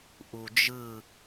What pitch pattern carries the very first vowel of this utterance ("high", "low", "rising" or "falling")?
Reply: low